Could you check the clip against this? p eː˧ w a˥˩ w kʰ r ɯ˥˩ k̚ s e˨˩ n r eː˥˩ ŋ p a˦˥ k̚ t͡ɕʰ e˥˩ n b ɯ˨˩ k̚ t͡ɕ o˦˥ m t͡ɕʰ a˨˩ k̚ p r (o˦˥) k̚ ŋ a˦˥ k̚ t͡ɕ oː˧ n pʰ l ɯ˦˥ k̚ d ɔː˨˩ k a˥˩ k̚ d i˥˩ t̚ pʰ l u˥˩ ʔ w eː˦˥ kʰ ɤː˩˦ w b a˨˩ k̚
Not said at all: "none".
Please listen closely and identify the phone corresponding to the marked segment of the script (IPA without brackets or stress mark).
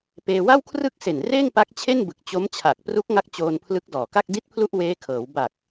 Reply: u˦˥